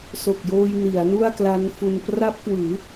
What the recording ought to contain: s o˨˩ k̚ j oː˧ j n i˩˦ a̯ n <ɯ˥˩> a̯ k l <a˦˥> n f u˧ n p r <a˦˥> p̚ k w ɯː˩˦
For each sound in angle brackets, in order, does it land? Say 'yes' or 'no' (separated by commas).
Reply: no, yes, yes